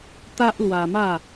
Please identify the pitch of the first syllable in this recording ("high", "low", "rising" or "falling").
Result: high